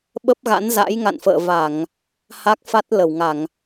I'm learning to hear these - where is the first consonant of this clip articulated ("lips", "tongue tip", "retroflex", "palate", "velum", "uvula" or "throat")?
lips